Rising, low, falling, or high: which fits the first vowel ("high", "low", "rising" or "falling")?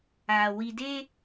low